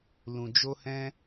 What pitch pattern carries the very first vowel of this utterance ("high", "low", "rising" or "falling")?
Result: low